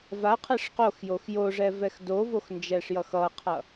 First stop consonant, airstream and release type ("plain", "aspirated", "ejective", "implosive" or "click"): aspirated